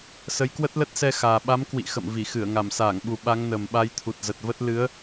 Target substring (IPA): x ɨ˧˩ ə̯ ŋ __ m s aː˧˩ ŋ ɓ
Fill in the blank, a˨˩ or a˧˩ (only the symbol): a˧˩